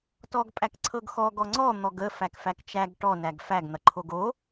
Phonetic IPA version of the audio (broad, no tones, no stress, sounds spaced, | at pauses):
t ɔ ɡ pʼ æ k ǀʰ ɤ ɡ x ɔ ɡ ɔ ŋ͡ǀ ɔ n̪ ɔ ɡ ə f æ k f æ k t͡ʃ æ ɡ ʈ ɔ n æ ɡ f æ ɡ n̪ ɐ ǃʰ o ɡ o